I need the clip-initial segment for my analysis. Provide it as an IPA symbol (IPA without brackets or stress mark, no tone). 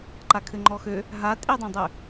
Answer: ǃ